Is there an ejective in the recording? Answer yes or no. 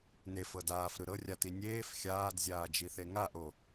no